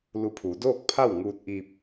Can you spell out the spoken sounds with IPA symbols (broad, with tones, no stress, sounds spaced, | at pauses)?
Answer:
l u˧ pʰ uː˩˧ d oː˥˨ k̚ pʰ a˥˨ w ŋ uː˧ t̚ ʔ iː˧ p̚